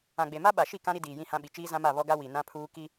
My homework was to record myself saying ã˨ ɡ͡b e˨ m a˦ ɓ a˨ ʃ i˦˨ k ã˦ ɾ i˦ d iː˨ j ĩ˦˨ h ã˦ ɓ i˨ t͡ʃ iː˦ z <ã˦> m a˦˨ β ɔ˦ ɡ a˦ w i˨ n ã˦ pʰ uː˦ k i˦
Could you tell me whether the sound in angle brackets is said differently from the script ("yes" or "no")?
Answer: no